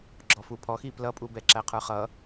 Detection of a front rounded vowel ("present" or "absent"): absent